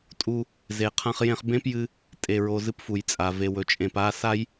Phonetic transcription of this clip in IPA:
tʼ u˧ | z e˩ qʰ ã˧ χ j ẽ˧ χ b ẽ˥ p j ɨ˧ | tʼ e˩ ɹ o˩ z ɨ˧ p f u˩ j t͡sʼ a˩ v e˩ w ɵ˩ t͡ʃʼ ẽ˩ p a˧ s a˥ j

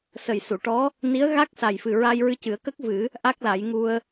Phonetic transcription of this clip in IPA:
s ə˨˩ j s u˨˩˨ ʈ ɔ˧˥ | n i˧˥ ə̯ ɣ a˦˥ k̚ s a˨˩ j f ɨ˨˩ ɹ a˧ j ɹ ɨ˧ c ɨ˨˩˦ ə̯ k ə˦˥ k̚ v ɨ˨˩˦ | ʔ a˦˥ k̚ l a˨˩˦ j ŋ u˧ ə̯

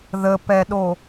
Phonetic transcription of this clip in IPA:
ð ə p ɛ ɗ o

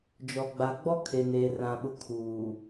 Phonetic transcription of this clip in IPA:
d͡ʒ ɔ˨ ɡ͡b a˨ ɡ͡b ɔ˦ kʰ e˨ n eː˨ r ã˨ ɓ ʊ˨ kʰ uː˨

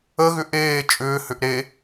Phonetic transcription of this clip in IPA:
ə ɣ ʏ ʔ eː t͡ʃʼ ʏː h ʏ ʔ ɾ e

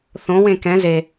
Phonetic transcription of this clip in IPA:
θ õ w ẽ k ɛ̃ z e

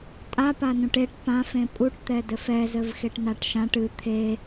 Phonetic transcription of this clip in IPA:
tʼ a p a n ũ ʈ e ʈ p ã f ẽ pʼ u ʈ t̪ ɛ d ɘ f ɛ z ɘ v x e ʈ n a ʈ ʃ ã ʈ ɨ t̪ʰ e

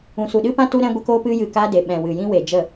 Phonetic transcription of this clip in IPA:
ũ˨ s u˨ ɗ ɨ˦ p ã˦ t u˦ ɾ ɛ̃˧ ɡʷ ə˧ k oː˧ p ɨ˧ j ɨ˨ k a˧ d e˨ ɓ ɛ̃˨ w ɨ˨ j ĩ˦ w e˨ d͡ʒ ə˦˨

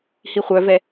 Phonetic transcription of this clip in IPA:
h i χʷ œ v ɛ

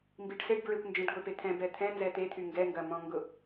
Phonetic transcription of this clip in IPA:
m b i ɖ s e ɖ b ɹ e kʷ n d͡ʒ ɛ̃ ɖ ɡʷ e p e t̪ʰ ɛ̃ b ɛ t̪ʰ ɛ̃ n z ɛ t̪ e t̪ʰ y ŋ ɡ ɛ ŋ ɡ ɐ m ɔ̃ ŋ ɡ ʊ

